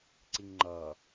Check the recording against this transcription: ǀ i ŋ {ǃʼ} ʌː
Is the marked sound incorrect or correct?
incorrect